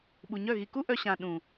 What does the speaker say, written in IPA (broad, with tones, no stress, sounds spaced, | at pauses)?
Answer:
ɓ u˨ ɲ œ˦˨ ɣ i˨ k u˦ ʔ œ˧ ɕ ã˨ ɗ ũ˨